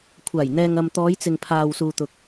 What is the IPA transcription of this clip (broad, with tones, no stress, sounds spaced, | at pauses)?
kʷʰ aː˨˩ j n̪ ɛː˨ ŋ ɐ˨ m t̪ ɔː˨˧ j t͡s ɪ˨ ŋ pʰ aː˨ w s uː˨ t̪ ʊ˨ k̚